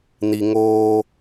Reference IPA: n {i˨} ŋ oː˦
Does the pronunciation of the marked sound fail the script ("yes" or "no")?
no